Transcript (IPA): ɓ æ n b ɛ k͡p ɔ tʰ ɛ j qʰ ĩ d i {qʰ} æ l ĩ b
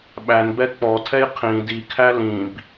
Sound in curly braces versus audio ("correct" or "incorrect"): incorrect